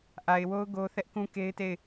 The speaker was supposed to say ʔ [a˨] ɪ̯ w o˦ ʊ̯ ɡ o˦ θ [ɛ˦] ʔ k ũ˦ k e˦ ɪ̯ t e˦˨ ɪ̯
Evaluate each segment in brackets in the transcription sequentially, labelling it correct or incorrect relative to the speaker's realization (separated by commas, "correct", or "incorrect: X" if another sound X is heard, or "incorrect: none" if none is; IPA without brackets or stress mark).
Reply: correct, correct